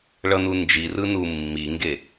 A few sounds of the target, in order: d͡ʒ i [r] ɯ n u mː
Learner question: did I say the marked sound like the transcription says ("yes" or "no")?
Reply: yes